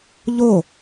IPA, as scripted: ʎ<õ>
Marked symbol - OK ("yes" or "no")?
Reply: no